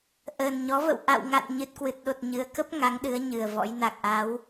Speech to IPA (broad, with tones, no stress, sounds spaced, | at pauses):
ʔ əː˨˩ n ɲ ɔ˨˦ v ə̰˧˨ w ʔ a̰˧˨ w ŋ a̰˧˨ n ɲ ɨ˨˩ t̚ k w ɨ˨˩ t̚ ɗ o˨˩ t̚ ɲ ɨ˨˦ ə̯ k ə˦˥ p̚ ŋ a˨˦ ŋ ɗ ɨ˨˦ ə̯ ɲ ɨ˨˩ ə̯ v ɔ̰˧˥ j n a˨˩ k̚ ʔ a˨˦ w